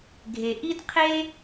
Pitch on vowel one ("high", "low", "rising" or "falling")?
low